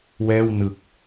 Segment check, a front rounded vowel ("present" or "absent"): absent